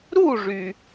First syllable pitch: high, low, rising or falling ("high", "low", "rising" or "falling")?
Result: falling